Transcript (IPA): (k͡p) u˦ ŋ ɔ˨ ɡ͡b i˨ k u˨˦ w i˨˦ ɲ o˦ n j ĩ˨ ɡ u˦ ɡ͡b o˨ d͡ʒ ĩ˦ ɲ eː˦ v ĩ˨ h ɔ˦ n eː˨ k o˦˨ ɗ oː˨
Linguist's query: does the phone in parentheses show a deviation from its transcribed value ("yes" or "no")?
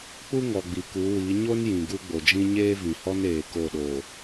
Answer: no